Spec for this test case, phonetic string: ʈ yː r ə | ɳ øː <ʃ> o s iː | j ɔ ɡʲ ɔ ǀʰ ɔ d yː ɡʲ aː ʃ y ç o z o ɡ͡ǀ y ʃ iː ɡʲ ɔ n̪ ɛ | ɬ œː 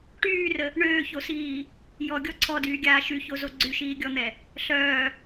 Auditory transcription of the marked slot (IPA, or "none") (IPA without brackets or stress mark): ç